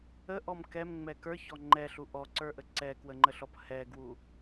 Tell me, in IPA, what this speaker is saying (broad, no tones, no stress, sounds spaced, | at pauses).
ə ʔ ɔ m k ɛ m ŋ͡m ɛ k ə˞ ç ɔ ŋ͡ǃ ɛ ɬ u ʔ ɔ ǀ ə˞ ʔ ə ǀ ɛ k w ə ŋ͡ǃ ə ɬ ɔ p h ɛ ɡ w u